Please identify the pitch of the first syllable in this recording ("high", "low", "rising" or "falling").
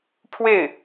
falling